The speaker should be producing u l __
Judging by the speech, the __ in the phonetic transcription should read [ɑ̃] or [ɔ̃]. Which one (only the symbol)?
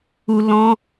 ɔ̃